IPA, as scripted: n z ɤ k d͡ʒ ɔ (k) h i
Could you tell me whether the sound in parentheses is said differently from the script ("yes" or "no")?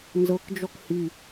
no